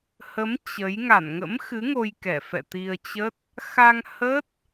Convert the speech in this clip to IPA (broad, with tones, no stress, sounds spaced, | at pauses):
h ə˨˦ m t͡ɕ ə˨˦ j ŋ a˧˩ n ŋ ə̰˧˥ m x ɨ˨˦ ŋ o˧ j k ɛ˧˩ f ɛ̰˧˨ t̪ i˧ ə̯ t͡ɕ ə˦˥ t̚ | x a˧ ŋ h ə˦˥ t̚